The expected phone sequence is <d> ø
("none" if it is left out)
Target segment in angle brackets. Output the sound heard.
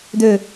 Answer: d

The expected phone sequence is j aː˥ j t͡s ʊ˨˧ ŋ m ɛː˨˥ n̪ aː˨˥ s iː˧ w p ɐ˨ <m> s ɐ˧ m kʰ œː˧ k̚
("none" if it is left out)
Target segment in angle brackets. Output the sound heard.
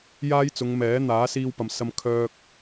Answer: m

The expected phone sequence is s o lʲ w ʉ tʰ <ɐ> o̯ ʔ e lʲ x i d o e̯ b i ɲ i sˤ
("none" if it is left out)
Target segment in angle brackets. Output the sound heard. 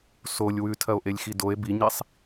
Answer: ɐ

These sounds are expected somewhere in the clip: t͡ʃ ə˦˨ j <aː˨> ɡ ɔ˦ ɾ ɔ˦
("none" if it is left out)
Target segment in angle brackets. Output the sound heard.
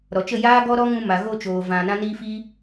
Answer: aː˦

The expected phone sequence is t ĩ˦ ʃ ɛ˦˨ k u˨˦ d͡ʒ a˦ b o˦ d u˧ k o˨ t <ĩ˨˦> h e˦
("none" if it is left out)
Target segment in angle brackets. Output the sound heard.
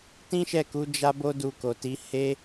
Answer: i˨˦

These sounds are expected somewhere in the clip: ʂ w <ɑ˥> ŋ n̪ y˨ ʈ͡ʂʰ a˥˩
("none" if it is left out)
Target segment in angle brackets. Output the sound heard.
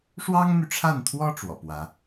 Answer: ɑ˥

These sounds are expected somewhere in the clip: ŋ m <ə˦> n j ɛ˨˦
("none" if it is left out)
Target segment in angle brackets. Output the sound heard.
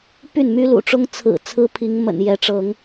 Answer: ə̰˨˩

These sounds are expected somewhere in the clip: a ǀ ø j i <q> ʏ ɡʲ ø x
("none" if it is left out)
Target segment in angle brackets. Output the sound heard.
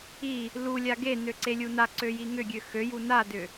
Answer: ŋ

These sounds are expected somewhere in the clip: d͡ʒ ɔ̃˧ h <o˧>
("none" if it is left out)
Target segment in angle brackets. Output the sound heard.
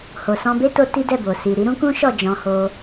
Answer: o˧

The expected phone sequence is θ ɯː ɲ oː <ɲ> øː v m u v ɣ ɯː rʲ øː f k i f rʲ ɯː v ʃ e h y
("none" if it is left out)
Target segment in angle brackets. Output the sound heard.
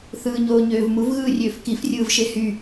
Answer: ɲ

